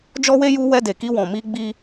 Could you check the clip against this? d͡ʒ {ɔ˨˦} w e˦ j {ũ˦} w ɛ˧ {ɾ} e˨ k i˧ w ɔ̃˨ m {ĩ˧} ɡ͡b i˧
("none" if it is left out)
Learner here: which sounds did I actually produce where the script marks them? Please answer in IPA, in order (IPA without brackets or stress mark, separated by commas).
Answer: ɔ˦, u˦, d, i˧